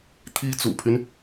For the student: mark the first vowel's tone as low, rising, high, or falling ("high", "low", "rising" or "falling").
high